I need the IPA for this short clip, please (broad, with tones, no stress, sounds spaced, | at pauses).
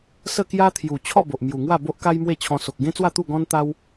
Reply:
s ə˥˧ k j a˦ t̪ʰ j u˨˩ t͡ɕʰ ɔ˥˧ b o˨ ʔ m j u˨˩ ŋ w a˥˧ b o˦ ʔ k a˦ j m w e˥˧ t͡ɕʰ ɔ̃˧ s o˨ k̚ ɡ ẽ˦ t͡s w a˥˧ t̪ u˥˧ ɡ ɔ̃˦ n t̪ a˦ w